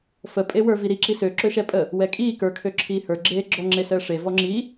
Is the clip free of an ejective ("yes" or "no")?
no